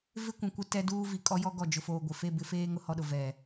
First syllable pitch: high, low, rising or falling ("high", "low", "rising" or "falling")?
high